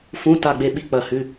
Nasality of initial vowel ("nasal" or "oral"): nasal